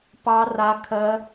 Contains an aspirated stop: yes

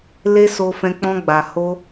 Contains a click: no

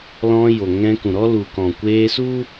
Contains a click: no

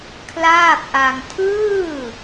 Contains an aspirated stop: yes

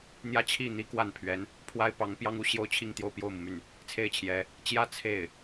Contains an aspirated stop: yes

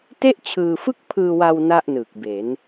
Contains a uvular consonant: no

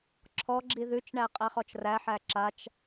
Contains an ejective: yes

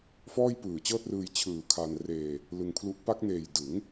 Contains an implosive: no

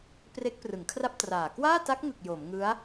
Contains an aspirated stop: yes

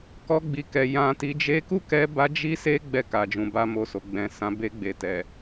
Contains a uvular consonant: no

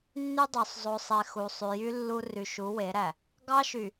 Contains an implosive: no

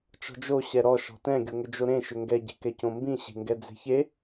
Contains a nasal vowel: yes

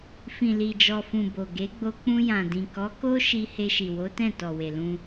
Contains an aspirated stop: no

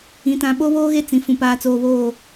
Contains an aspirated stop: no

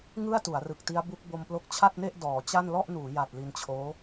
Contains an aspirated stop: yes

